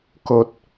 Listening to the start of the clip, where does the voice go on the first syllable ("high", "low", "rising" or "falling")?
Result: low